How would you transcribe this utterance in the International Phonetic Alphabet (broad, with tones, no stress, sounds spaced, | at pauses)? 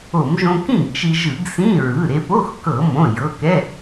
o˧˩˧ m ʒ õ˧ k ĩ˥˨ ɡ t͡ʃ i˧ ʒ ɯ˧˩˧ ɡ s ĩ˧˥˧ ɹ ɯ˩˧˩ ɾ e˧ p o˧˥˧ x k ɤ˧˩˧ m õ˩˧˩ j ɤ˩˧˩ k ɛ˧˥˧